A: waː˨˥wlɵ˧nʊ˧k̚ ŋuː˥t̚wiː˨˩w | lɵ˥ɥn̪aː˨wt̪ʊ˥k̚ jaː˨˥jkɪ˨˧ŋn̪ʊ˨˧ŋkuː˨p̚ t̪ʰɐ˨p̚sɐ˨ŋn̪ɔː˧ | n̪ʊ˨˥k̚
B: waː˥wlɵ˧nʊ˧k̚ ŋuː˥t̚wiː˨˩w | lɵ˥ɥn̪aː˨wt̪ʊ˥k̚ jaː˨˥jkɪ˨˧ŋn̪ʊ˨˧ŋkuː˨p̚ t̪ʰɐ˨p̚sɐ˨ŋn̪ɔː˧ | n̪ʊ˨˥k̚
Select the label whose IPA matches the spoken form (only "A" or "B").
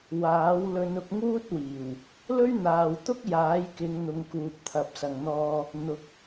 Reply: A